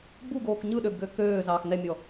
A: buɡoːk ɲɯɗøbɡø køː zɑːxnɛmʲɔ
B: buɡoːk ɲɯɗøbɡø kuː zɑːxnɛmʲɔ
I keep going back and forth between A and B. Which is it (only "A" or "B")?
A